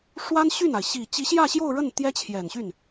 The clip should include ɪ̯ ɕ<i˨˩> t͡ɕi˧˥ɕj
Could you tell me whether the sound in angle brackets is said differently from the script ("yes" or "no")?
no